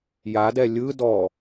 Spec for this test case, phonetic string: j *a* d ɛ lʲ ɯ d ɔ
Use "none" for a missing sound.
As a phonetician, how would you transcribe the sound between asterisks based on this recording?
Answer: a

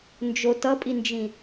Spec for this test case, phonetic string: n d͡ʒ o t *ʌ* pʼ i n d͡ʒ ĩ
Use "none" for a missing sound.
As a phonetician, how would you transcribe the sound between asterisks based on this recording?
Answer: ʌ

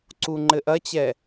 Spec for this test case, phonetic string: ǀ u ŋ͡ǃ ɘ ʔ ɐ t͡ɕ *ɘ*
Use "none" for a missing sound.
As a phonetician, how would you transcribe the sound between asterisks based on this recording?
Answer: ɛ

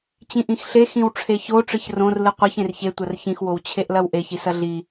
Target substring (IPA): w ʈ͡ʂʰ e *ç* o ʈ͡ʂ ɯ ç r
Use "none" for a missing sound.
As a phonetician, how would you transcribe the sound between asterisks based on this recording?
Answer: ç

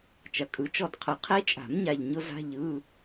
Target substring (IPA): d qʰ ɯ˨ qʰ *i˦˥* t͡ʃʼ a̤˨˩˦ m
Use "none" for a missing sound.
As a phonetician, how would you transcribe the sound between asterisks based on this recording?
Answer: i˦˥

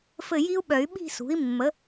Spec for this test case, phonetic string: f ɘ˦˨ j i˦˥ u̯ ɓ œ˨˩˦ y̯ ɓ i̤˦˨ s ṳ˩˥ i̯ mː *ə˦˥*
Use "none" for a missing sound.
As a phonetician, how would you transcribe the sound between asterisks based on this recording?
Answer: ə˩˥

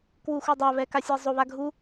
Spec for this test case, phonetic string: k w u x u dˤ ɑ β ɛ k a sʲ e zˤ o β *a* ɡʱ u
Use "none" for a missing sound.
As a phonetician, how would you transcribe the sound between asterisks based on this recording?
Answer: a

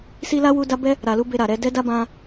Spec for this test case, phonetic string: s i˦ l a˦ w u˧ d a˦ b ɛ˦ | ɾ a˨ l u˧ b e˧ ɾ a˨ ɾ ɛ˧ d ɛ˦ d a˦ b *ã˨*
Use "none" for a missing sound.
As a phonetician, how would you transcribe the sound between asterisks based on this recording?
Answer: ã˧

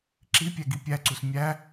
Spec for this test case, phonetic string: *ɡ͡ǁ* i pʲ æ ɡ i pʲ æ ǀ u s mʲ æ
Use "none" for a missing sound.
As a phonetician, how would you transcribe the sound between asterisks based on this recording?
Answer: ǁ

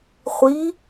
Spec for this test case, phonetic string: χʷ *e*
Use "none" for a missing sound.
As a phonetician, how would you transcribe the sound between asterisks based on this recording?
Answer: i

